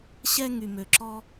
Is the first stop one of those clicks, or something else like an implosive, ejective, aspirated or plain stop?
click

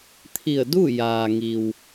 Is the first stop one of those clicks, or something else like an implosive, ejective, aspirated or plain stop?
aspirated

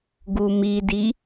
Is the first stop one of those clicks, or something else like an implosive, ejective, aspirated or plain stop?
plain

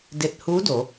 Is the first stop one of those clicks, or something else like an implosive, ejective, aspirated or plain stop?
plain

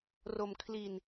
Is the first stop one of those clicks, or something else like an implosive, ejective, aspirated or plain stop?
aspirated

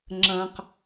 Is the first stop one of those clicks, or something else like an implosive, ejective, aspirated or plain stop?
click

